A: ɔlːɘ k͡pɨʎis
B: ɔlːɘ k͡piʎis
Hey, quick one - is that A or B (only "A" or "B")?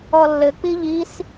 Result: B